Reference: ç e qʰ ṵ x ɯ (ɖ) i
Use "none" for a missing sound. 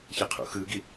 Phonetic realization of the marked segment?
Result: ɡ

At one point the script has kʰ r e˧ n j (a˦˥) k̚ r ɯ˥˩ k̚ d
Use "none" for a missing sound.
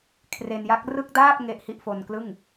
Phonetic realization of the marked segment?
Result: a˦˥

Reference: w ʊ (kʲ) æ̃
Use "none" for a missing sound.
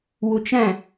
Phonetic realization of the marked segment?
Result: t͡ʃ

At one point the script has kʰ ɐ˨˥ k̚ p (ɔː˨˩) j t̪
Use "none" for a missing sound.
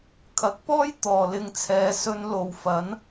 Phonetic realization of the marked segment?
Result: ɔː˥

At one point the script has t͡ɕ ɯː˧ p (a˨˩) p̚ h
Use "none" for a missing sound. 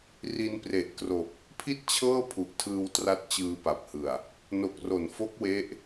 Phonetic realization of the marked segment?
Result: a˨˩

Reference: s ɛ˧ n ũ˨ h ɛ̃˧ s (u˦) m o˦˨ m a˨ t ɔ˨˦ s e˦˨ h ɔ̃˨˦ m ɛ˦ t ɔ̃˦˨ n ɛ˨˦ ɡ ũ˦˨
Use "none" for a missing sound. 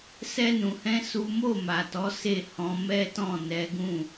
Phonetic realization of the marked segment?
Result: u˦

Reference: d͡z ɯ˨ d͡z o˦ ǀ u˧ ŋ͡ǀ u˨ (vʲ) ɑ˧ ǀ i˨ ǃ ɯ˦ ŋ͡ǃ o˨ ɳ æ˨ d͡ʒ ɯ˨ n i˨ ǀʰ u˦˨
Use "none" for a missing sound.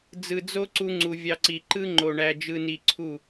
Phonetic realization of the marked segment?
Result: vʲ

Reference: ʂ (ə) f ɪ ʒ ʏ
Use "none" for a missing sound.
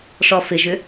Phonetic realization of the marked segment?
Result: ɔ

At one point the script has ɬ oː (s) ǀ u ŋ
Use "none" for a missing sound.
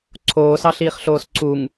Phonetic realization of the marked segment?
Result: s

